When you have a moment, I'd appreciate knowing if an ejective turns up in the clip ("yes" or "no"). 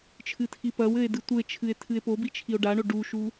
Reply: no